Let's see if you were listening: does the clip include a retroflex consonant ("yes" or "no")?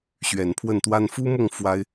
no